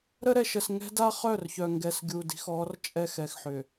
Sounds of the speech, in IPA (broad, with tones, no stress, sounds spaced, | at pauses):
ɾ ə˦ ɾ ɛ˨ ʃ ə˨ s ŋ ɛ̤˦ d a˦ χ œ˦˨ r ç œ˨ ŋ ɡ ɛ˨ s ɡʲ u˨ d i̤˦ x ɔ˨˦ r t͡ʃʼ ɛ˦ x ɛ˨ x ħ ʏ˨